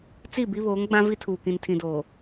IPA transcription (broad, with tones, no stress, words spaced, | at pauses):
t͡si˦˨bi˦βoː˨˦ŋ ɡ͡bã˦vi˦tʰuː˨ kĩ˨ntʰĩ˨doː˨